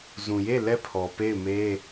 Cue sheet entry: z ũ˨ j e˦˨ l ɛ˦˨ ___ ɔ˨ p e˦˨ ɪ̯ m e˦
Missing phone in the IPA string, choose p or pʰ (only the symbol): pʰ